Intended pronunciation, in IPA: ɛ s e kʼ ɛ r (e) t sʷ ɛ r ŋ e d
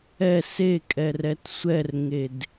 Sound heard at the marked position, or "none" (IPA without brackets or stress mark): ɛ